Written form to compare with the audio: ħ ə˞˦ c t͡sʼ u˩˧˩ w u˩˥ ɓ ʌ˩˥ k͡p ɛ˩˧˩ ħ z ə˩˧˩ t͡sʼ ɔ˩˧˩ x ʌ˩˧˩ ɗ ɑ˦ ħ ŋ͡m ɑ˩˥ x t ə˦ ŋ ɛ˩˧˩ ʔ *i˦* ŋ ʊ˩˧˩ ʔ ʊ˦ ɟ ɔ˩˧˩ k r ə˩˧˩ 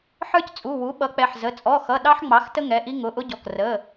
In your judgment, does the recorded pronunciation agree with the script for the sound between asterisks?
yes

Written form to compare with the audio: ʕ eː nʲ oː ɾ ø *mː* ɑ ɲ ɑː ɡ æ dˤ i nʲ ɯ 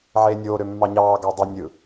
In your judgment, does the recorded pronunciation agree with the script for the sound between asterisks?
yes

